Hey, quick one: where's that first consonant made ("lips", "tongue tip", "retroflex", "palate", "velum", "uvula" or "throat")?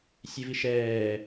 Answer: tongue tip